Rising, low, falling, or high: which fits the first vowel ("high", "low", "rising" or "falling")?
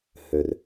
low